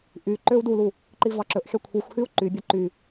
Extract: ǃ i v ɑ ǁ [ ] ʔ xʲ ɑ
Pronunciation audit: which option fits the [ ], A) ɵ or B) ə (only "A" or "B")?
A